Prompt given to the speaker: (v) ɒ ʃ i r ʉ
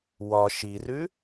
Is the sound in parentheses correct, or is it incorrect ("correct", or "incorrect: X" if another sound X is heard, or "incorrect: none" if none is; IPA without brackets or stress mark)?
incorrect: w